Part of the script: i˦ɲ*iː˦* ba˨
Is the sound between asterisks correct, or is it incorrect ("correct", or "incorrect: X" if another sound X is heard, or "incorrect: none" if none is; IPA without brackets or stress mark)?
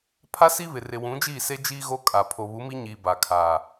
incorrect: iː˨